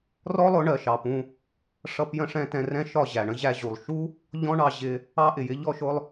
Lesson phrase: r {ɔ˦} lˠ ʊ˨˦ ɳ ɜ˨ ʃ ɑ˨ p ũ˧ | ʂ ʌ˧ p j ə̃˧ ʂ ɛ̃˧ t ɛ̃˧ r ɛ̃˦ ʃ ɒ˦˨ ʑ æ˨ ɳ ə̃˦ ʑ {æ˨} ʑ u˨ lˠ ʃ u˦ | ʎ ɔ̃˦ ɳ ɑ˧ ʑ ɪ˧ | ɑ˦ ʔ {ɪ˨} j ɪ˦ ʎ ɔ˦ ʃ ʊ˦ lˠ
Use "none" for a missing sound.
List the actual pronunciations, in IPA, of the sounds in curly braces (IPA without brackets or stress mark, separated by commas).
ɔ˦, æ˧, ɪ˨